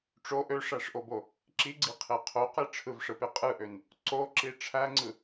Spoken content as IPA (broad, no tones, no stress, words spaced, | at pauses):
ʈ͡ʂo ʔøʂæʂʔobo | ǁiɡ͡ǀiqʰe qʰoqe ʈ͡ʂʰɯvʂɯpe qʼɯʔøn | ǀoǁi ʈ͡ʂʰæŋ͡ǀɯ